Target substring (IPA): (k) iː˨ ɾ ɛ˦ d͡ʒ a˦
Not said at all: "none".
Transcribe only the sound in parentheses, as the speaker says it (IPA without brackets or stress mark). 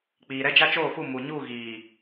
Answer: k͡p